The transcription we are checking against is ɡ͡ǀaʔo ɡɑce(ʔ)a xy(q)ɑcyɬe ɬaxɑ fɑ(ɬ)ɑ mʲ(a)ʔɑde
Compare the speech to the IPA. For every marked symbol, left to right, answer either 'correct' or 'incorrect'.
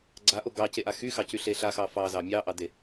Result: correct, incorrect, incorrect, incorrect

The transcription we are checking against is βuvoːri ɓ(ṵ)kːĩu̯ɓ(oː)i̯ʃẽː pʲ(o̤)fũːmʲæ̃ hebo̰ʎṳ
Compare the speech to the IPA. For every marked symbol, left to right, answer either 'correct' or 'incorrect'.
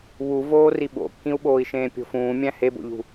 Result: incorrect, correct, correct

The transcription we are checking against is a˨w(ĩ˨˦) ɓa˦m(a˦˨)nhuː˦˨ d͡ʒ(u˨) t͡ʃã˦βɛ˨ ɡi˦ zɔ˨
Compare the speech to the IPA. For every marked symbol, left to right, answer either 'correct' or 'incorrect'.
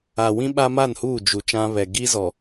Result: incorrect, correct, correct

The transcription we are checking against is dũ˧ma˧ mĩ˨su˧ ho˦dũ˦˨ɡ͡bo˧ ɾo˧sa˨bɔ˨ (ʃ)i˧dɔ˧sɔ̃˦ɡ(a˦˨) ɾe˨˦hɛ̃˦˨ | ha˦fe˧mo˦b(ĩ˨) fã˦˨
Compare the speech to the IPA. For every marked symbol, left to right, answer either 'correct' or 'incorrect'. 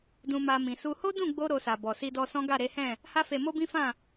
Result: incorrect, correct, incorrect

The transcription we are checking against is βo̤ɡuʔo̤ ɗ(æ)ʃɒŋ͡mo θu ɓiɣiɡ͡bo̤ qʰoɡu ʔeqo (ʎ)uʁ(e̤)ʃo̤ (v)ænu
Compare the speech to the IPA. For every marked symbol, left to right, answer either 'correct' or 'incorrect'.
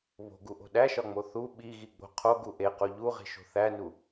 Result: correct, correct, incorrect, incorrect

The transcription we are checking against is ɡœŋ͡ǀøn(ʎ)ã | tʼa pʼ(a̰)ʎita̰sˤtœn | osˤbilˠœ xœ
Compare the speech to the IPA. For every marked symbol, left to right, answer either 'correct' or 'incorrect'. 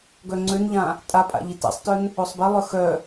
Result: correct, correct

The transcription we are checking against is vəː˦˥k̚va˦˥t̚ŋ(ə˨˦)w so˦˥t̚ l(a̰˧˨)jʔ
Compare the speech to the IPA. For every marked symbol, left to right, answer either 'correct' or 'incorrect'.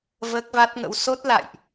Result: incorrect, correct

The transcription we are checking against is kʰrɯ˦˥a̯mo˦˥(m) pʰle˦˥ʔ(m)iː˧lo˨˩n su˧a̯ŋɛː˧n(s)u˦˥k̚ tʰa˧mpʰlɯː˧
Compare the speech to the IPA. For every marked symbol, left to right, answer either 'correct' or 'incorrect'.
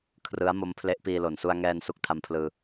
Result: correct, incorrect, correct

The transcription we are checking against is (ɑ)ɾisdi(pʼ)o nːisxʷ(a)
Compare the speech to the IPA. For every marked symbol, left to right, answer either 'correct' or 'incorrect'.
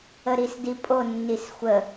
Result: incorrect, correct, incorrect

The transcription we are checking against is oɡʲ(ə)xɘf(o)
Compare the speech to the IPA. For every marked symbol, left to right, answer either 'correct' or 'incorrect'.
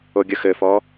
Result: correct, incorrect

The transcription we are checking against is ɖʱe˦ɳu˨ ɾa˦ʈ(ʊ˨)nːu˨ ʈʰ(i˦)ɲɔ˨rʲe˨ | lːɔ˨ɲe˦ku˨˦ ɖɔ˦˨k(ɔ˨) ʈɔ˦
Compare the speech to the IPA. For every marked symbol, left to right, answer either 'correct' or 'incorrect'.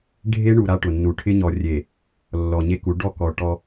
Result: correct, incorrect, correct

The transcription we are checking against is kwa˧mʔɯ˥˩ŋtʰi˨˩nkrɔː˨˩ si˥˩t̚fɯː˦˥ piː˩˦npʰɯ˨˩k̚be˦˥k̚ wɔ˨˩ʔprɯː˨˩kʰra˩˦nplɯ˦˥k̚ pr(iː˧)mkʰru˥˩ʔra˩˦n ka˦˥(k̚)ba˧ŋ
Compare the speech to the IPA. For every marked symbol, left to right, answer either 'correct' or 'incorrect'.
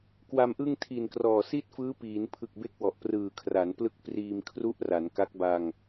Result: correct, correct

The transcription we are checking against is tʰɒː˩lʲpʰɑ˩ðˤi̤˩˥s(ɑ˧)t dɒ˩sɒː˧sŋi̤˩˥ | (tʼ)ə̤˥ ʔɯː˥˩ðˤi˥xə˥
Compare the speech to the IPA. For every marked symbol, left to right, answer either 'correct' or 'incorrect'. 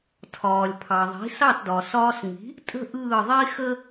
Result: incorrect, correct

